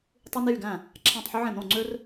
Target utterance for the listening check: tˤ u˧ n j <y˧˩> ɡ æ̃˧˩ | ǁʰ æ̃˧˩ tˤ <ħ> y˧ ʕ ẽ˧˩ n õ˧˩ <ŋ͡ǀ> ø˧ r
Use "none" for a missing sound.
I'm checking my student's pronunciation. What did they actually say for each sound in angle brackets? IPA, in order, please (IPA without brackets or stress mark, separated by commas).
y˧˩, ħ, ŋ͡ǀ